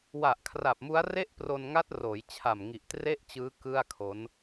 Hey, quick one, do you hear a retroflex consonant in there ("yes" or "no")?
no